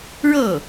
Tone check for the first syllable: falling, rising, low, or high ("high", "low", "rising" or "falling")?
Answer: falling